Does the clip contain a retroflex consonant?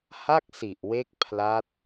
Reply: no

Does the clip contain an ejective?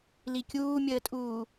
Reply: yes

